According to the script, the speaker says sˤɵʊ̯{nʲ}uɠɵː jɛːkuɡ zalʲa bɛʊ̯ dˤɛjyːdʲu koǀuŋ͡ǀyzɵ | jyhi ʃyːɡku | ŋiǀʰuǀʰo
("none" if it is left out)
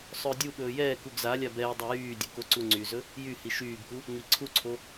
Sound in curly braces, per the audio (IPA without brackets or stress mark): dʲ